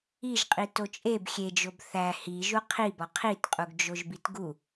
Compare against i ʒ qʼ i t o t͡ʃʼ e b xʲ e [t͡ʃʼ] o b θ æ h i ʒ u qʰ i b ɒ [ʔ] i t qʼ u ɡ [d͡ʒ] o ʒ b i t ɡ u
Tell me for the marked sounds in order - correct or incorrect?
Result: incorrect: d͡ʒ, incorrect: qʰ, correct

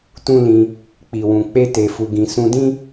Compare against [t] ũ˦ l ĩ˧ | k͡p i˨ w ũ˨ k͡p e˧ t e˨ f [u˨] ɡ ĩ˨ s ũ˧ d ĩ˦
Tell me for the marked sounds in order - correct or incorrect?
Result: correct, correct

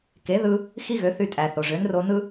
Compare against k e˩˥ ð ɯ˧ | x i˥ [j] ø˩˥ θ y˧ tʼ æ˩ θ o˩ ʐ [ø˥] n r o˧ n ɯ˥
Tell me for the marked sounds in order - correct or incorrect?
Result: incorrect: ɣ, incorrect: ø˩˥

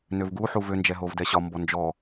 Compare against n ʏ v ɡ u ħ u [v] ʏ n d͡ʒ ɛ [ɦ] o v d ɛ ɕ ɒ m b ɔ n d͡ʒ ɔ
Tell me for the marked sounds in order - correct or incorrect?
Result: correct, correct

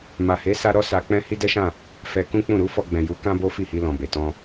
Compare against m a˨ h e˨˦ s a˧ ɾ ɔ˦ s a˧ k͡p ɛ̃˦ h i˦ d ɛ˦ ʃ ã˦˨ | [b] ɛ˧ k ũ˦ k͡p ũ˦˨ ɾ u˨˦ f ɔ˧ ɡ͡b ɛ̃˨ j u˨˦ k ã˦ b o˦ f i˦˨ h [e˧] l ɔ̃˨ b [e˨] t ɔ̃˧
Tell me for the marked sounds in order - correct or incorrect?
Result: incorrect: f, incorrect: i˧, correct

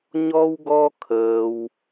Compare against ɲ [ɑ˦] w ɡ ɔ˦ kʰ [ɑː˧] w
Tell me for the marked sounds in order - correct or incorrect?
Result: incorrect: ɔ˦, incorrect: əː˧

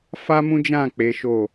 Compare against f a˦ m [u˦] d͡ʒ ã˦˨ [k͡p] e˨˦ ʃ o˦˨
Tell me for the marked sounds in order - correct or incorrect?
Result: incorrect: ũ˦, correct

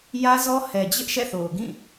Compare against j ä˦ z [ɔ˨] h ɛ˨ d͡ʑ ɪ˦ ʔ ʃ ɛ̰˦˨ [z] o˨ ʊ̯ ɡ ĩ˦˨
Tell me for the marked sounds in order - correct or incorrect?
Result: incorrect: ɔ˦, incorrect: θ

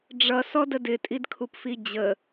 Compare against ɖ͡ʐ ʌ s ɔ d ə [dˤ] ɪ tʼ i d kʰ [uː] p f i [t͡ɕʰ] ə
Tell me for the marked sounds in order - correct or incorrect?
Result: incorrect: d, incorrect: u, incorrect: d͡ʑ

